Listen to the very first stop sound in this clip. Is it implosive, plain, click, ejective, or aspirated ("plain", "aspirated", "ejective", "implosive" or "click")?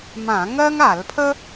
aspirated